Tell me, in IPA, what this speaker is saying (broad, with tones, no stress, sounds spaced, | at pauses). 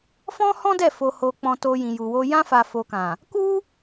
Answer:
f ɔ̃˦ h ɔ̃˦ d ɛ˦˨ f o˧ h o˧ k͡p ɔ̃˧ t o˧ j ĩ˨ j u˨ w o˧ j ã˧ f a˨ f o˨ k ã˨ | k u˦